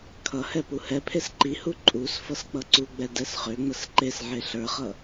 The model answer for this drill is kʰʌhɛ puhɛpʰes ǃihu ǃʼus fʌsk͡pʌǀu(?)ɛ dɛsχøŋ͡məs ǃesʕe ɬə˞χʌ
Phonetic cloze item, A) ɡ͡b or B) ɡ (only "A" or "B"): A